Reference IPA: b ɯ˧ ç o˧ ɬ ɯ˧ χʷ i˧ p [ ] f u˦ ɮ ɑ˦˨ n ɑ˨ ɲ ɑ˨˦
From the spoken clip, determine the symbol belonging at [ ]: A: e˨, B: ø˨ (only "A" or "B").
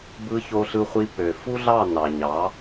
B